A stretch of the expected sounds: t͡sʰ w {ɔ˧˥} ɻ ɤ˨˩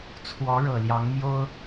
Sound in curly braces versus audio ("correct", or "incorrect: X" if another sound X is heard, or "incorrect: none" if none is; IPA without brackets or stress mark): correct